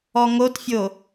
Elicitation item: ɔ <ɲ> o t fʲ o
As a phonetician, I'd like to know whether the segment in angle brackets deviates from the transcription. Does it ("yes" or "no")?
yes